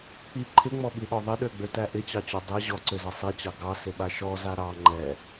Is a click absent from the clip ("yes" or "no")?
no